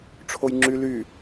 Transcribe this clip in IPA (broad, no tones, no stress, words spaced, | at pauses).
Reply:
ʈ͡ʂʰojŋ͡ǁy ly